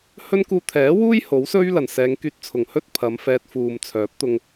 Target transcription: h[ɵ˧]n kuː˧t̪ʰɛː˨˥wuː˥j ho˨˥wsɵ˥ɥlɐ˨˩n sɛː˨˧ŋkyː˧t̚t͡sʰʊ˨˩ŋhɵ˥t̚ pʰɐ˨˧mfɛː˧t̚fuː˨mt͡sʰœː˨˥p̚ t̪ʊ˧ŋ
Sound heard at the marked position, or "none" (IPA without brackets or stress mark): ɵ˥